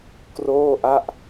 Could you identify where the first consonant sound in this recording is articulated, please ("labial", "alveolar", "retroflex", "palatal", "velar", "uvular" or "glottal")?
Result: velar